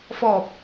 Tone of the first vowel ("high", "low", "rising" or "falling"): low